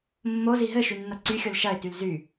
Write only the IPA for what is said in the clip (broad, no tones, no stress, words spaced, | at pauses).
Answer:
mːozi ɦɘʃynːɐ ǀyxʲol ʃɐɪ̯tyl zy